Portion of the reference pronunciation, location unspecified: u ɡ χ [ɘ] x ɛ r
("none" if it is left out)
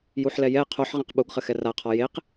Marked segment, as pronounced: ɘ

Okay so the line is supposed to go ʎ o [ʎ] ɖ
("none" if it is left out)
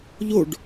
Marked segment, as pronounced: none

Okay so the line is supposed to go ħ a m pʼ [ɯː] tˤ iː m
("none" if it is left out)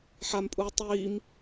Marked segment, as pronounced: uː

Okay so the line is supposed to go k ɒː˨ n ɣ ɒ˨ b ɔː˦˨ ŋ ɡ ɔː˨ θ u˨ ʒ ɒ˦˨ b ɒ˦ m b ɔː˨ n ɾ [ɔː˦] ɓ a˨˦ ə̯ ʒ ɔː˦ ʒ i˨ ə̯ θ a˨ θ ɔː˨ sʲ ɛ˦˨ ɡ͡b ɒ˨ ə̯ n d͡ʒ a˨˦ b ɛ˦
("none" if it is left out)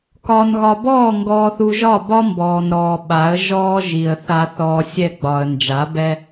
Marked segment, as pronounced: ɔː˨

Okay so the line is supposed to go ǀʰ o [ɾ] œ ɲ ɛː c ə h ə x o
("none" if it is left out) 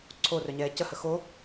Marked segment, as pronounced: r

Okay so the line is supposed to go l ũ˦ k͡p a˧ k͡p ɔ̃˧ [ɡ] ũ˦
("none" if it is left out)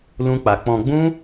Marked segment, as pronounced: ɡ͡b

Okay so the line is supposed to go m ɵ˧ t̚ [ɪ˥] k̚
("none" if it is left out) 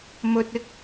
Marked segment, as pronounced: ɪ˥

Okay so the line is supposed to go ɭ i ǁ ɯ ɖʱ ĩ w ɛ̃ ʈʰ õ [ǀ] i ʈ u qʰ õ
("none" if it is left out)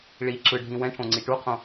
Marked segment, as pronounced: ŋ͡ǀ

